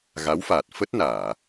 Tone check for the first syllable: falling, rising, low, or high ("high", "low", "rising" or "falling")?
rising